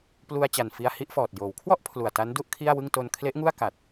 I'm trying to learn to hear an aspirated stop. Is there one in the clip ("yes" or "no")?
yes